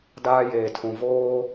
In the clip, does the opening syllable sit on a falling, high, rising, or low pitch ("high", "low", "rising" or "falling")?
high